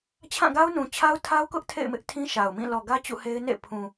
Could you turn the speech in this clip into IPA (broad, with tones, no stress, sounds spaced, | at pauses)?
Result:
t͡ɕʰ ã˦˨ ɡ a˦ ʊ̯ n ũ˨ t͡ɕʰ a˦ ʊ̯ tʰ a˦ ʊ̯ k ʊ˦ ʔ tʰ ḛ˦˨ ɪ̯ m ɪ˦ ʔ tʰ ĩ˦ ʃ a˨ ʊ̯ m ĩ˦˨ l ɔ˨ ɡ ä˦ t͡ɕ ṵ˦˨ h e˦ ɪ̯ n ḛ˦˨ pʰ ũ˨